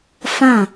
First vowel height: low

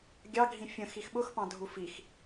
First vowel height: low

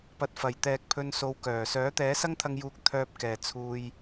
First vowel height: low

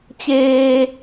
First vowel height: mid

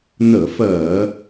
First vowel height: mid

